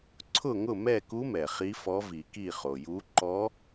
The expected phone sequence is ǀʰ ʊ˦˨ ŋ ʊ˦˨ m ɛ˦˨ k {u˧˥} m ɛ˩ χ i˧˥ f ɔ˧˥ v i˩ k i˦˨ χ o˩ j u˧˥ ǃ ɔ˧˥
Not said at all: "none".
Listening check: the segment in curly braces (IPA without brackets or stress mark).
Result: u˧˥